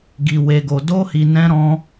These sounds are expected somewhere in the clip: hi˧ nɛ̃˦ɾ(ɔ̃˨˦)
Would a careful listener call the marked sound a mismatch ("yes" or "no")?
yes